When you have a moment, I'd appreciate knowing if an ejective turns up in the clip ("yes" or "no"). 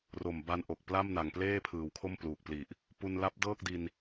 no